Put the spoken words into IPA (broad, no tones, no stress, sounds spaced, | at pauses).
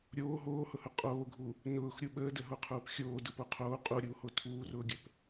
ɾʲ oː ɦ oː h ʊ h ʊ qʼ oː ɡʱ u | n ʊː x ɾʲ u ɓ əː d ə ɦ o qʰ uː p xʲ oː d ʊ p o qʰ oː qʼ u ɾʲ uː h o tʰ uː r ʊː ɡʲ ə p